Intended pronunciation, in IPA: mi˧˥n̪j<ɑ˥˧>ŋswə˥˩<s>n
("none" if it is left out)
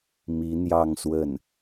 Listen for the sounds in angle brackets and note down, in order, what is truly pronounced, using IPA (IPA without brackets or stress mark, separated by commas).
ɑ˥˧, none